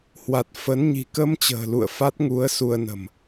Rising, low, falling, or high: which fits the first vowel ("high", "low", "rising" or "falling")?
low